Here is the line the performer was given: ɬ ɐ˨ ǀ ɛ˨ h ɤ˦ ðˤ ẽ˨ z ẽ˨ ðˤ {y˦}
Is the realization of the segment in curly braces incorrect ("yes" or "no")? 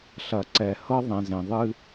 yes